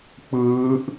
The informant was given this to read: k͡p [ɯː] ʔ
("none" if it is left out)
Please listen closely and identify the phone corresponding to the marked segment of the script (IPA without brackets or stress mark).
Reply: ɯː